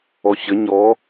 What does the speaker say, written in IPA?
ɔ ɕ ɘ ɲ ɔ

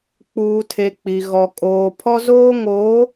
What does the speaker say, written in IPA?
k͡p uː˨ tʰ e˨ k͡p i˨ ɣ ɔ˨ kʼ oː˨ pʰ ɔ˦ z oː˦ ŋ oː˨˦

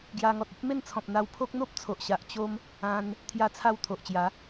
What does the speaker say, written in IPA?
ɡ j a˧ ŋ ɔ˨ t̚ ə˦ p̚ m e˥˧ n t͡sʰ ɔ̃˨ p̚ n̪ a˧ w pʰ o˦ k̚ n̪ o˦ p̚ t͡sʰ o˨ ʔ ɕ a˨ ʔ t͡ɕ o˦ m | ã˧ n | t̪ʰ j a˧ t͡sʰ a˧ w t̪ʰ o˨ ʔ t͡ɕ j a˨˦

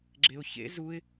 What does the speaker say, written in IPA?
ɡ͡ǁ e ʊ̯ ç ḛ z u ɪ̯

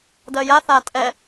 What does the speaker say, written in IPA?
d ɜ j a θ a tʼ ɛ

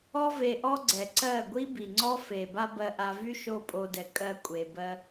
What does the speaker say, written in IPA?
ɔ˧ v e˨ ʔ ɔ˧ ɡ͡ǀ ɛ˨ ǀ ɜ˦˨ ɡʷ i˦ b i˨ ŋ͡ǀ ɔ˦ f e˨ b a˦ b ɜ˧ ʔ a˧ v y˦ ʃ o˦˨ pʼ o˧ d ɛ˨ kʼ ɜ˦ kʷʼ e˧ b ɜ˦

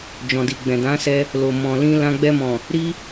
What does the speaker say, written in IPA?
d͡ʒ ɔ̃˨ d i˨ ɡ͡b ɛ̃˨ d ã˨˦ s ɛ˧ | l o˨ m ɔ̃˨ l ĩ˧ l ã˧ ɡ͡b ɛ˧ m ɔ̃˨ | ɾ i˦

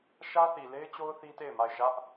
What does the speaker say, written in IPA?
ʃ ä˦ θ i˨ l e˦ ɪ̯ t͡ɕ o˦ ʊ̯ θ i˦ t e˦˨ ɪ̯ m a˦˨ ɪ̯ ʃ ä˦ ʔ

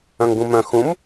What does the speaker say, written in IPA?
œ̃ ŋ ɡ ũ m œ̃ x ũ m

